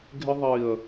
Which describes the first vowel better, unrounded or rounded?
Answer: unrounded